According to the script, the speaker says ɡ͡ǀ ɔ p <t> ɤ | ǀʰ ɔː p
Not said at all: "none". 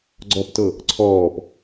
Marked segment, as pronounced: t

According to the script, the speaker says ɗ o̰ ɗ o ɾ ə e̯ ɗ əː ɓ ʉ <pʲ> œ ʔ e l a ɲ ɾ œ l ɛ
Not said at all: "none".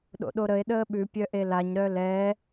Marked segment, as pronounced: pʲ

